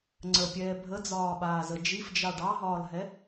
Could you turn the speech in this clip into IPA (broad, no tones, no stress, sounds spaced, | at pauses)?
ŋ͡ǀ ə pʲ ɛː bʱ ə d͡z ɒː ɓ aː z ə d͡ʒ i f d͡ʒ ɑ ɖ ɑ ɦ ɒː l ɦ ɛ